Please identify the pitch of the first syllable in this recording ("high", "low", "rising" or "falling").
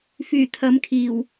low